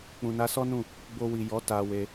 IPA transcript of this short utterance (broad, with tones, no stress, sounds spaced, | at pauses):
k͡p ũ˨ n a˧ s ɔ˦ n ũ˦˨ | b o˧ w i˨ j ɔ˨˦ t a˧ w e˧